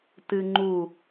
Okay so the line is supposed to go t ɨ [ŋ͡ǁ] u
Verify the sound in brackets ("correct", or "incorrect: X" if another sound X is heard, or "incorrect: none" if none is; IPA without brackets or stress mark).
incorrect: ŋ͡ǃ